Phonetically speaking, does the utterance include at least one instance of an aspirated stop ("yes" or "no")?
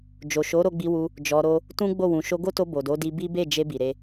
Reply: no